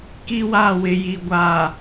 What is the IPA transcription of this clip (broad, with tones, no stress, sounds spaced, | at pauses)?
k i˦ w a˦˨ w ɪ˨ j i˨ ɡʷ a˨